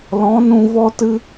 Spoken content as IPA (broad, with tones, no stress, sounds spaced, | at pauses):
l ɔ̃˨˦ n ũ˧ v ɔ˦ t ɨ˦